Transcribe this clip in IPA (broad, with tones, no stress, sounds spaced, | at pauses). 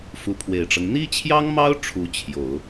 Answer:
f u˧˥ pʰ w e˨˩ ɪ̯ ʈ͡ʂ ɤ˦ ŋ n̪ i˥ t͡ɕʰ j ɑ˥ ŋ m ɑ˥ ʊ̯ ʈ͡ʂʰ u˧˥ t͡ɕʰ j o˨˩˦ ʊ̯